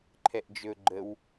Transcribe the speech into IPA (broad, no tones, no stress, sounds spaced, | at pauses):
ǃʰ ɛ ʔ d͡ʒ ɵ ɡ͡ǃ ə w